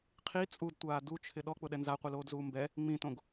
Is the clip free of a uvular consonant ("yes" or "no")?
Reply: no